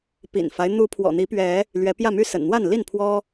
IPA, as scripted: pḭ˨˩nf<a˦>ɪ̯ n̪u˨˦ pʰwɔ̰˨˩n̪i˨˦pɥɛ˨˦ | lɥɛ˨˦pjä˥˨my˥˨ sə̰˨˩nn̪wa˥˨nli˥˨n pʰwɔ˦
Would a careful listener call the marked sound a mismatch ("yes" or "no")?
no